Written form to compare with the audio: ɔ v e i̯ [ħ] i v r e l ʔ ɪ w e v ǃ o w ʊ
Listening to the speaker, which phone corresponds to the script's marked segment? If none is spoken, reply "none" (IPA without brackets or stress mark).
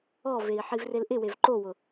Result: ħ